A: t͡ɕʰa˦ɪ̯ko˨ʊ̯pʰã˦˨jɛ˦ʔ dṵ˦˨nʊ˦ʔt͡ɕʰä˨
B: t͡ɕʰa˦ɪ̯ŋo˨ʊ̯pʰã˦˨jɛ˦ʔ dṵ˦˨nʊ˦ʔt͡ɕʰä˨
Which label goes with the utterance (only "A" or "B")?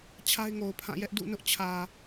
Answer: B